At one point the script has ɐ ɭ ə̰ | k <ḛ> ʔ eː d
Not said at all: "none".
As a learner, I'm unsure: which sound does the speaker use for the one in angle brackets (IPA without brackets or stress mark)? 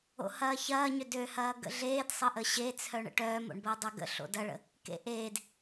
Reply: ḛ